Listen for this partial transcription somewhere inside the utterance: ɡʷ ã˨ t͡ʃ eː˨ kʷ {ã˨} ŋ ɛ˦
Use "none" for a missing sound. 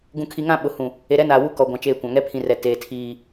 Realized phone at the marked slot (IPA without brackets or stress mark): ã˨